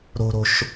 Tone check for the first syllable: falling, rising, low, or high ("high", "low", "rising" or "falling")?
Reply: high